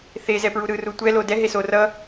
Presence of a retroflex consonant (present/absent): absent